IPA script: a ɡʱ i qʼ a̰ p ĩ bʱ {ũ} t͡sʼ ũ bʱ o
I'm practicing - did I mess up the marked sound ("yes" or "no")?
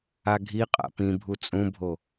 yes